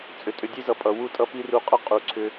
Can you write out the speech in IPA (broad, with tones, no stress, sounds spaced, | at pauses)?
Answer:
t͡sʼ ʏ˨ tʼ ʏ˧ dʲ e˦ z ʌ˨ pʼ ʌ˨ w u˦ tʼ ʌ˦ p i˦ r u˧ qʼ ʌ˦ qʼ u˨ ǀʰ ʏ˧